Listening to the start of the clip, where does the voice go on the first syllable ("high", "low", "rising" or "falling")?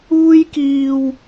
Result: high